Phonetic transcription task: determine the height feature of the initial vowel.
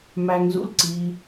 low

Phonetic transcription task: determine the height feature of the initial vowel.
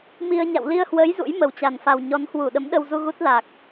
high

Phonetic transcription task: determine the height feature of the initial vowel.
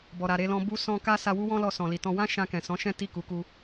mid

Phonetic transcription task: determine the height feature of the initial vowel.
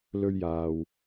mid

